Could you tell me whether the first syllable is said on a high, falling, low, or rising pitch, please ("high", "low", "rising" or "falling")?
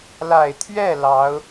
low